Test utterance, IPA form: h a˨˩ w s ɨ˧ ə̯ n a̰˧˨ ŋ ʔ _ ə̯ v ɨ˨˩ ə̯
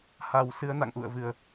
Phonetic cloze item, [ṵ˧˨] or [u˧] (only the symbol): ṵ˧˨